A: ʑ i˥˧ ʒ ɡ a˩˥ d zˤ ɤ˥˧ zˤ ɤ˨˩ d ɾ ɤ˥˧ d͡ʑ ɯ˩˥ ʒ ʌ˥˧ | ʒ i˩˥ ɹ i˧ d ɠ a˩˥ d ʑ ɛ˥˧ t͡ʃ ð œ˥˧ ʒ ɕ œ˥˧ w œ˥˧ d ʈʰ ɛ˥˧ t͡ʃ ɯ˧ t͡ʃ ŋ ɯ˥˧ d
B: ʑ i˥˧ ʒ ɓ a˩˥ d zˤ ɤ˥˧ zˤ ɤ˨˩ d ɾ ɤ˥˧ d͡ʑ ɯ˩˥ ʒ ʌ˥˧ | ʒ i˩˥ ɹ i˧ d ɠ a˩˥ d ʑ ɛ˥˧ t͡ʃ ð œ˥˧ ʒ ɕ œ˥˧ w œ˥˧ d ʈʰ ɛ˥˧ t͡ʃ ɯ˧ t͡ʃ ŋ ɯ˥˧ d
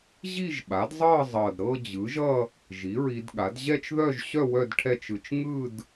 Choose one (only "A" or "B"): B